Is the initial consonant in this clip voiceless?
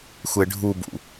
yes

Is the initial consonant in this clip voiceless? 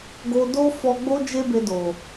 no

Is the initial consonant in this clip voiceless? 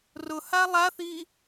no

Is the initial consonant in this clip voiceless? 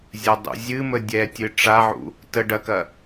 no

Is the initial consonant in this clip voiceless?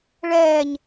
no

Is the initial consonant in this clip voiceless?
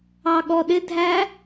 no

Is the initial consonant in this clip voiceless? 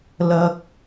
no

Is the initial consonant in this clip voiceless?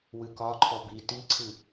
no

